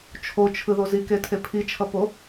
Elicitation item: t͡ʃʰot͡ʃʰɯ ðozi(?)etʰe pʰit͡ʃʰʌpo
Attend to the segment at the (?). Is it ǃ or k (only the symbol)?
k